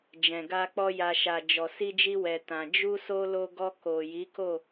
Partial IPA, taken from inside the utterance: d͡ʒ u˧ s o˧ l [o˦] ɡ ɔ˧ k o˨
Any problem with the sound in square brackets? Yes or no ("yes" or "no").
yes